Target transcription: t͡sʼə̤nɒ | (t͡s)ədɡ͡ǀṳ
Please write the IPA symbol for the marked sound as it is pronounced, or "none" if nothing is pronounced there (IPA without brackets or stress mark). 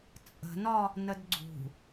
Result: n